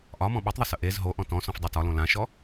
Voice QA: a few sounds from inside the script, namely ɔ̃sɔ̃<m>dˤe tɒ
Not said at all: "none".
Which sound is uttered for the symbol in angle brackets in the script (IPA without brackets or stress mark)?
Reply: f